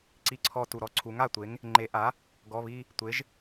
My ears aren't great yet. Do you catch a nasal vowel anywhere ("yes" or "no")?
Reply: no